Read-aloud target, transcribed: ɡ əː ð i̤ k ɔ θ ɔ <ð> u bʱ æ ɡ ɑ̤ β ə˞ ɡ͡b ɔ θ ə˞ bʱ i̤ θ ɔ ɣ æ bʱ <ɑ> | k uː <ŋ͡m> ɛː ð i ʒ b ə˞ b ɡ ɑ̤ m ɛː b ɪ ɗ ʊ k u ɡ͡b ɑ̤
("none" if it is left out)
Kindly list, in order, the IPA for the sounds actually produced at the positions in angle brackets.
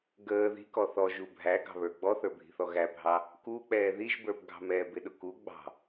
ʒ, ɑ, k͡p

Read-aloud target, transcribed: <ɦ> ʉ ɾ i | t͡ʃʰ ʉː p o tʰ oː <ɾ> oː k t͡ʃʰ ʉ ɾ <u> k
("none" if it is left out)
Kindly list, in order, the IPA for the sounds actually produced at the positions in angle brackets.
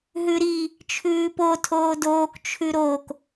ɦ, d, o

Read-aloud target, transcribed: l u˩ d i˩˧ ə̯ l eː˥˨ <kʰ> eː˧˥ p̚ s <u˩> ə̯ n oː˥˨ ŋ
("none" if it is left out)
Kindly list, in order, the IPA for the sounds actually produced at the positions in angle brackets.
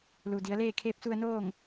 kʰ, u˧

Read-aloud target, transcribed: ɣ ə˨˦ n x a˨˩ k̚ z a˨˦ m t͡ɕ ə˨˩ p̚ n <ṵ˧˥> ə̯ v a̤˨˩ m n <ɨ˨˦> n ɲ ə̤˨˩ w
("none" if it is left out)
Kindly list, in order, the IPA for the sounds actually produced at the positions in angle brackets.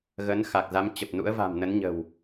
ṵ˧˥, ə˨˦

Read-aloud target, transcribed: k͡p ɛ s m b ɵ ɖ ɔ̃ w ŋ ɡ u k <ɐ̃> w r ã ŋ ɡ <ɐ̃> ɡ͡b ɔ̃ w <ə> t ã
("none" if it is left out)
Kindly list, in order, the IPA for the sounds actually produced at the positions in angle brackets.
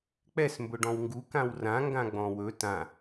ã, ã, ɵ

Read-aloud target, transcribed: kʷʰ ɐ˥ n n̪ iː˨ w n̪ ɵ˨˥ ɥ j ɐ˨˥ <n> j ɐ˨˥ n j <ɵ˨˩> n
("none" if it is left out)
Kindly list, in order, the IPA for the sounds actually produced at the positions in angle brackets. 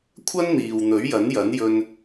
n, ɵ˧

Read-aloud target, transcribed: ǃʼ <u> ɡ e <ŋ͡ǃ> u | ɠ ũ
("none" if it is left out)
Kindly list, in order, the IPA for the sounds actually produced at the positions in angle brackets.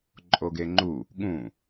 o, ŋ͡ǃ

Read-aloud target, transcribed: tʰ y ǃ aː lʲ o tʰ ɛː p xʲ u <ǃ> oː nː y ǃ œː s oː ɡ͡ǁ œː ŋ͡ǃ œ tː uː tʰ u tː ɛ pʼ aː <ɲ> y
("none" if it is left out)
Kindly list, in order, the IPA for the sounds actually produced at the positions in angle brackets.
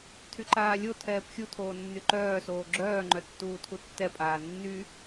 tʰ, nː

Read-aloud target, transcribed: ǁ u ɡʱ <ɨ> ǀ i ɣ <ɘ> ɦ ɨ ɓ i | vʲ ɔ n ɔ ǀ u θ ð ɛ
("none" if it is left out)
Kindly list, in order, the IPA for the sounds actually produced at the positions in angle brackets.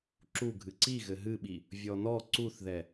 ɨ, ɘ

